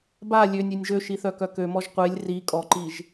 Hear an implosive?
no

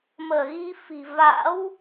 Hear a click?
no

